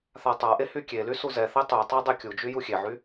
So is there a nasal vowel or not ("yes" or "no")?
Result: no